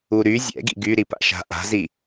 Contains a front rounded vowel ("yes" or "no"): yes